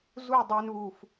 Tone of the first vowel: falling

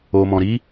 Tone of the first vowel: low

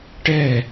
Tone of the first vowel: falling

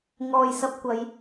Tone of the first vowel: low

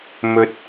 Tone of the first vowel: rising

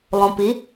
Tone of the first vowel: low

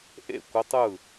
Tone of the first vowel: falling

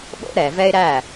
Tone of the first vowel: high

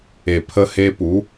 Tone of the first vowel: low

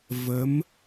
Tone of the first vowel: rising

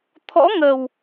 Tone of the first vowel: rising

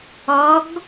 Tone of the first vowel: rising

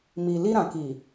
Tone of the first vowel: low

